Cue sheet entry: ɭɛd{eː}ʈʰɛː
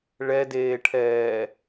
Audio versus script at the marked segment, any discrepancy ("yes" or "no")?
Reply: no